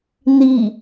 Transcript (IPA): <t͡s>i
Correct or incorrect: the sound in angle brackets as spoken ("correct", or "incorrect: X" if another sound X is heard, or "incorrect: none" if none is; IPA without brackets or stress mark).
incorrect: n